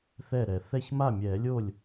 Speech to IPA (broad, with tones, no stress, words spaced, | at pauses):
θɛ˥˩ɾɛ˨˩˦ θɛ˥˩ç ma˥˩mʲɛ˨˩˦lʲo˥˩lʲ